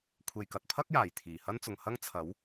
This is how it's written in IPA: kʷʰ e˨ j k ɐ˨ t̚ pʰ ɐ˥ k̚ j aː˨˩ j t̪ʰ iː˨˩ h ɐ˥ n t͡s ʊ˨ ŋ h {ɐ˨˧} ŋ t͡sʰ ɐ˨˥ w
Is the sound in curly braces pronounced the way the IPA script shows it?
no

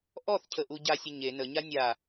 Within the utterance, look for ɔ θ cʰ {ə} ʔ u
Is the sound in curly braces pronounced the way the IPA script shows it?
yes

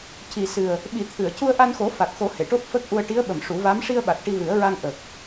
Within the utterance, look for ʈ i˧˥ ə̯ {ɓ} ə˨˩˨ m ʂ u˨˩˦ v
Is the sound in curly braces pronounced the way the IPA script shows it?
yes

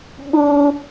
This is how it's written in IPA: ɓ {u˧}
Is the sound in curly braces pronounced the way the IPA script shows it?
yes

